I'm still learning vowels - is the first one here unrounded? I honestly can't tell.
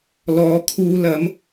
no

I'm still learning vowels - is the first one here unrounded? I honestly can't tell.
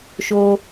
no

